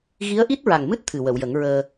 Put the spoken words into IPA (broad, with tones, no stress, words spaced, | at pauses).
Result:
ɣi˧˥ə̯ʔi˦˥t̚ɹa˨˩ŋmɨ˦˥t̚ t̪ʰɨ˨˩wə˨˩˨wjə˨˩˦ŋɹəː˧